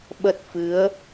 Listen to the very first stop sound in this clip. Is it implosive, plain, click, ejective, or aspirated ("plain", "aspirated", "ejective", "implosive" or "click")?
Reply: implosive